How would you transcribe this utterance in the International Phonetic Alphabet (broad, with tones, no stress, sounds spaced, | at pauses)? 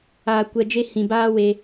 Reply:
aː˨ kʷ ɛ˨ d͡ʒ e˧ h ĩ˨ b aː˦ w e˧